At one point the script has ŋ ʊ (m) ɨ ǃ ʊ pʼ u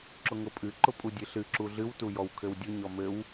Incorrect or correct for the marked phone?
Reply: incorrect: pʼ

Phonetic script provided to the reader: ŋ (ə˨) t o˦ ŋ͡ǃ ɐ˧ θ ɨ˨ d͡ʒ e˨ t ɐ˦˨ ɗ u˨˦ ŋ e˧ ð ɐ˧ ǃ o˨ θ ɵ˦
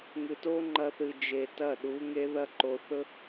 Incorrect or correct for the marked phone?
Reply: incorrect: ɨ˨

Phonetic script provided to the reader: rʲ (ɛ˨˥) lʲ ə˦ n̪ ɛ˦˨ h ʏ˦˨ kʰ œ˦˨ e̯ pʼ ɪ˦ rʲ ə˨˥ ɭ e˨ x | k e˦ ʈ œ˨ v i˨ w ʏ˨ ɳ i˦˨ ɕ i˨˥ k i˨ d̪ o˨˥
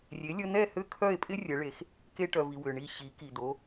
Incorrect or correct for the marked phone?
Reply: incorrect: e˨˥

